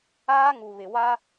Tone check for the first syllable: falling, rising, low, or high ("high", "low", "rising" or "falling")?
high